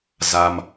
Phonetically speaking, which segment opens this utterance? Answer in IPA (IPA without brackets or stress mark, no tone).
z